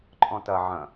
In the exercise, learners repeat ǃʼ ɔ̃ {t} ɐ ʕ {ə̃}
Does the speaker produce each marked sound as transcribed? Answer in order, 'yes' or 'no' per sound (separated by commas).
yes, no